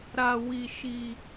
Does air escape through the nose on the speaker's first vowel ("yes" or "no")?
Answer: no